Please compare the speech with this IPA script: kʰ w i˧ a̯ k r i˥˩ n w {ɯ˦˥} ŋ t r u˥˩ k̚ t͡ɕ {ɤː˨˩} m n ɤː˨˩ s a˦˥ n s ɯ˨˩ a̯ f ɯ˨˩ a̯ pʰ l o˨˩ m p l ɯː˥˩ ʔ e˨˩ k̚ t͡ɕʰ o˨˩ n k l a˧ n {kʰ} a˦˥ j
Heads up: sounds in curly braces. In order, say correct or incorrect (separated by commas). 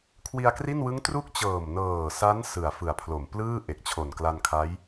correct, correct, correct